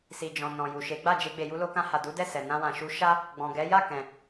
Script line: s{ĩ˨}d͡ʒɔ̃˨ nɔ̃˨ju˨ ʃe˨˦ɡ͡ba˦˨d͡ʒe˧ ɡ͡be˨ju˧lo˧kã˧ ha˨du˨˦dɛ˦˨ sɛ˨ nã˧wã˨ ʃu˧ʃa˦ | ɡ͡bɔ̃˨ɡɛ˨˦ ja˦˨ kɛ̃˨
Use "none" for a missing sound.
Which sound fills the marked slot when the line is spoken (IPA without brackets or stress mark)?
i˨